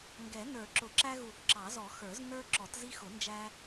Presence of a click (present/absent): present